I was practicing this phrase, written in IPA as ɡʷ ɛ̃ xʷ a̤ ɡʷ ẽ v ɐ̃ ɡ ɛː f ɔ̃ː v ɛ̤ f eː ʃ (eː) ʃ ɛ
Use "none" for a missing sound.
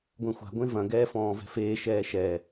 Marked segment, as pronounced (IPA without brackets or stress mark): ɛː